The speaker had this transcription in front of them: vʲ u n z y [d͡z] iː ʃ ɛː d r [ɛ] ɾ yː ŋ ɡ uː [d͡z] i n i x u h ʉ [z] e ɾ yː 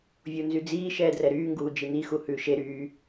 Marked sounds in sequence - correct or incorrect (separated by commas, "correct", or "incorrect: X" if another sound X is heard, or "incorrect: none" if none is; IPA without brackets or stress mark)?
correct, correct, incorrect: d͡ʒ, incorrect: ʃ